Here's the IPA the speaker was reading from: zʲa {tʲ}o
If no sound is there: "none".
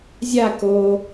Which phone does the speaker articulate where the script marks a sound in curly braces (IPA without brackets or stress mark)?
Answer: k